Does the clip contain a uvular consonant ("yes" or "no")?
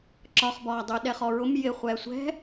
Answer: yes